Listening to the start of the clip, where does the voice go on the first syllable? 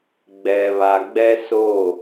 low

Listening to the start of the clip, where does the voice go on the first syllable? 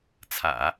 low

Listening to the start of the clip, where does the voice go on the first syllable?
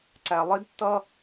low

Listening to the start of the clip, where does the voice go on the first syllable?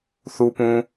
low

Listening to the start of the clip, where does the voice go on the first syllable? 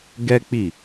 high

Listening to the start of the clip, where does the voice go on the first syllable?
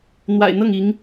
low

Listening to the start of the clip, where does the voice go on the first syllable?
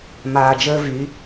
low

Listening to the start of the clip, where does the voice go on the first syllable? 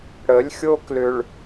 rising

